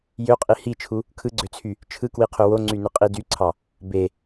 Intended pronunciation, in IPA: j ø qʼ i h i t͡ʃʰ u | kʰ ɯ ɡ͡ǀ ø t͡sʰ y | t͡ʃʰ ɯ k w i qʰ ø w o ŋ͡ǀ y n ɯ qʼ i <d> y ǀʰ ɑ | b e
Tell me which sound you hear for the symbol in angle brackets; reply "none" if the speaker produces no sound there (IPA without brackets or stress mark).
d